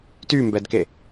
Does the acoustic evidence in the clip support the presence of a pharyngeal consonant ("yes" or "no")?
no